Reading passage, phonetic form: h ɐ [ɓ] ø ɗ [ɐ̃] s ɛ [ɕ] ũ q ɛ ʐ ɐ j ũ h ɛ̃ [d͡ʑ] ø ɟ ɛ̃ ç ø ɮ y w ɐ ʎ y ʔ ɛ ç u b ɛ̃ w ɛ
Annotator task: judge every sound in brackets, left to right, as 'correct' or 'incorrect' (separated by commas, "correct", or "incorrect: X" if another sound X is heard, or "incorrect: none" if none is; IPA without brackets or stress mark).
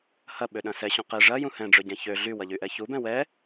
correct, correct, correct, incorrect: ɖ͡ʐ